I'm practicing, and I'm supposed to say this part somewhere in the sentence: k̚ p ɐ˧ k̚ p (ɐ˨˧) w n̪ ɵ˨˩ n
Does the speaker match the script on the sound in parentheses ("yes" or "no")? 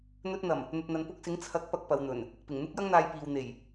yes